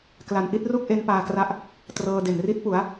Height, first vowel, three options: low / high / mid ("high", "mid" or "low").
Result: low